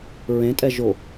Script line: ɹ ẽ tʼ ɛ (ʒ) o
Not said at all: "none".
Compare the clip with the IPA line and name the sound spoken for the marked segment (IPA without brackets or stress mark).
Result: ʒ